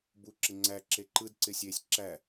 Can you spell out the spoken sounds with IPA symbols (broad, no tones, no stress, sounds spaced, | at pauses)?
b u ǁ ɪ ŋ͡ǀ æ ǁ e ǃ ɯ d ǀ ɪ sʲ e sʲ ǁ æ